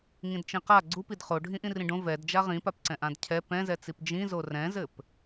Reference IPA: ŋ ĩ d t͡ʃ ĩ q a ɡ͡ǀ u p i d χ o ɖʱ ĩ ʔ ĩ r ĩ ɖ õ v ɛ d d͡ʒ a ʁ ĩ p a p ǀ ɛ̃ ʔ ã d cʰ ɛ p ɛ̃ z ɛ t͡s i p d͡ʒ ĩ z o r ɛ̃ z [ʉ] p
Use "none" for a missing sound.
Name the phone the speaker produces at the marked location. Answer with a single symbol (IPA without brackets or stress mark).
ɘ